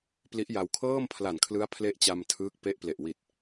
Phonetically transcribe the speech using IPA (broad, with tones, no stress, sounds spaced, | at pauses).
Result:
p l i˦˥ ʔ j a˧ w kʰ ɤː˥˩ m pʰ l a˨˩ n kʰ l ɯ˦˥ a̯ pʰ l e˥˩ ʔ t͡ɕ a˧ m tʰ ɯː˦˥ k̚ p e˦˥ ʔ p l e˨˩ ʔ w i˨˩ t̚